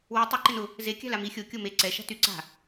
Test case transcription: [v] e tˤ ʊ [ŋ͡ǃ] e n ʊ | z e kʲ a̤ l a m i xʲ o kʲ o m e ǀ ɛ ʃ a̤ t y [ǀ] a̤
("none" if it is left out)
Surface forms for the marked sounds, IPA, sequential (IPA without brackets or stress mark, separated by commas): w, ǃ, ǀ